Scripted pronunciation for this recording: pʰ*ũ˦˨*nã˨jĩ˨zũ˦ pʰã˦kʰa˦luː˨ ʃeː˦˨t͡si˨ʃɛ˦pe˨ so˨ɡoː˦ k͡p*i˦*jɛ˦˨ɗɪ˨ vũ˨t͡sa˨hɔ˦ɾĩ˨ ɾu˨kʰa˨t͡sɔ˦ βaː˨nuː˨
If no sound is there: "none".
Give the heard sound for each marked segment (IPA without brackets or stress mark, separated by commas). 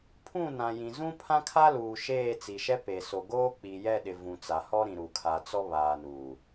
ũ˦˨, i˨